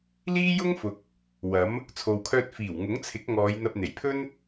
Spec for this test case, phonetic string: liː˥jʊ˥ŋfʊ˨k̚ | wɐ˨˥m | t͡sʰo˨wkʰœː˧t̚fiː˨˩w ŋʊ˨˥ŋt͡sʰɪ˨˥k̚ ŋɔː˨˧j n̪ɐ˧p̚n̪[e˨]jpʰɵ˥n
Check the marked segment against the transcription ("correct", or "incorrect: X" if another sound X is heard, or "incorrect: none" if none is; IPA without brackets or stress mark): incorrect: e˨˩